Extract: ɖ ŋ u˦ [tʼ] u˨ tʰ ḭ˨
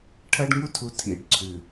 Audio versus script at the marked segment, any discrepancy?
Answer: yes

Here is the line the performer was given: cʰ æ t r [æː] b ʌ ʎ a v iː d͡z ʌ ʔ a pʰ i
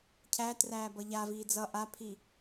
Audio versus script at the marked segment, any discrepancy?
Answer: no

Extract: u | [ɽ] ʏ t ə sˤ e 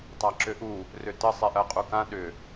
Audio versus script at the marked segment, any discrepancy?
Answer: yes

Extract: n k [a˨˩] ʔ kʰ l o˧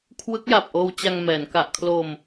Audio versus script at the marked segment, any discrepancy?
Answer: no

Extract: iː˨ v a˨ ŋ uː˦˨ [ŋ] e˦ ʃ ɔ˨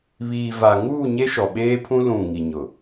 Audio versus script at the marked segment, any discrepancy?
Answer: yes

